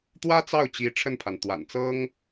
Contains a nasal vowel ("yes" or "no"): no